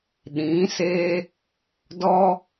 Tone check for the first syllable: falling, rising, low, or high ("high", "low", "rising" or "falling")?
rising